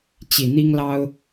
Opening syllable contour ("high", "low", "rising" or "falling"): low